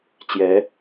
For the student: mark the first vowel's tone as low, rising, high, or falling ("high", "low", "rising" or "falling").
rising